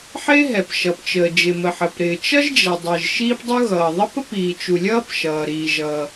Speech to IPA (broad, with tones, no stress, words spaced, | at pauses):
ħɪː˥ ɦɛ˩pʃʌ˩pt͡ʃəː˩ d͡ʒɪ˩mə˩ħəː˩pɾɪː˩ t͡ʃʌ˥ʒd͡ʒɛ˩dˤəː˩ʒ ʃiː˥pdˤu˥ ɣʌː˩ ðˤə˥p ə˥piː˩t͡ʃu˩ lʲʌː˥pʃʌː˩ ɾiː˩ʒʌː˩